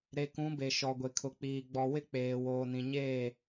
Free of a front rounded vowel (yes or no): yes